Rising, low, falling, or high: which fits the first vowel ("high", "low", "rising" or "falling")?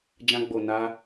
high